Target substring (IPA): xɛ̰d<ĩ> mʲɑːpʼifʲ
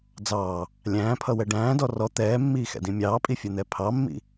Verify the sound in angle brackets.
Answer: correct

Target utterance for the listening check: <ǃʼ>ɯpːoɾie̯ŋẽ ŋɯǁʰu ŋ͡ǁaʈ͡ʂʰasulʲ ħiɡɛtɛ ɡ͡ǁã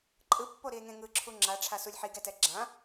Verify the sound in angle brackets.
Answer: correct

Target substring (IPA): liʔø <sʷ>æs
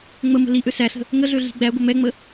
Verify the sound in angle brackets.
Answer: incorrect: s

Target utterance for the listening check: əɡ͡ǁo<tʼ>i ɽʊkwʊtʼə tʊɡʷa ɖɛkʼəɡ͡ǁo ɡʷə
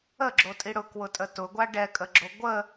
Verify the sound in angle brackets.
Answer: correct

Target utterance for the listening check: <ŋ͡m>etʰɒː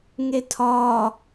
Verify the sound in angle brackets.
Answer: incorrect: ŋ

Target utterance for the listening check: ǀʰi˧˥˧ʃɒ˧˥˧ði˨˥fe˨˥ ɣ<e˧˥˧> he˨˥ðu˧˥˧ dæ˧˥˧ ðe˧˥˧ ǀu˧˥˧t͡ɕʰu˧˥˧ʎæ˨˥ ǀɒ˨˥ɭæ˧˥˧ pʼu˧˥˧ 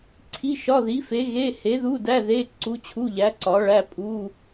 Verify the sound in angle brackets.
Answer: correct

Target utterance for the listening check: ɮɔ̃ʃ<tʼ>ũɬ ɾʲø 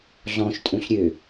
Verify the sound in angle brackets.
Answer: correct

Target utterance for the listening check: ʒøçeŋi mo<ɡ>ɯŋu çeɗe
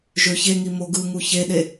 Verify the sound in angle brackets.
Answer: correct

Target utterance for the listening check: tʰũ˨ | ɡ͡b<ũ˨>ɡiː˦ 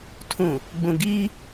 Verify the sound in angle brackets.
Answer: correct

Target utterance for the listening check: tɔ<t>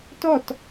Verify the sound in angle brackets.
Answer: correct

